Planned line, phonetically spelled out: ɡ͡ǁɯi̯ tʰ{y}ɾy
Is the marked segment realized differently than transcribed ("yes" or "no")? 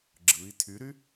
no